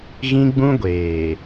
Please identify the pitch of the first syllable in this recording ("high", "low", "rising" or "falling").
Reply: high